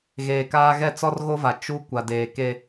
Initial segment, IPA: ɣ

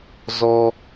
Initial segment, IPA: z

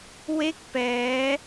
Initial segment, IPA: w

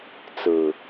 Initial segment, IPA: t͡s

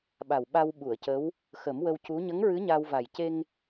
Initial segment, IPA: ɓ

